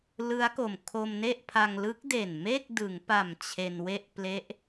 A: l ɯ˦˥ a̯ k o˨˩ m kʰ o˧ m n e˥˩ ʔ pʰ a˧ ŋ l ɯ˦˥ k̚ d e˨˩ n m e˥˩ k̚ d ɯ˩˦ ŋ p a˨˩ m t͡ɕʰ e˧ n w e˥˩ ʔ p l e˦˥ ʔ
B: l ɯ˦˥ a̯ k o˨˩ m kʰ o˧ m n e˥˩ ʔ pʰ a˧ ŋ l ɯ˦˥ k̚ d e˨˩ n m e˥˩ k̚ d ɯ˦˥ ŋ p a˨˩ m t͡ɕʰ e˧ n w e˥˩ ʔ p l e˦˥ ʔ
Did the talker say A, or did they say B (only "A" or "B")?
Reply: A